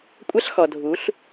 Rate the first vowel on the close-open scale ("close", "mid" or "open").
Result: open